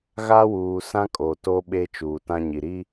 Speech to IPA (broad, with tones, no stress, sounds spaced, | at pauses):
ɣ a˦ w uː˨ s ã˦ kʼ o˨ t o˦ ɓ eː˦ t͡ʃ uː˨ t ã˦ ɲ i˨ ɾ i˦